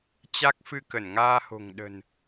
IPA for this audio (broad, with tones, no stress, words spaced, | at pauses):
t͡ɕa˦˥k̚fɨ˧ kə˧˩nŋaː˧ho̤˨˩ŋ ɗə̤˨˩n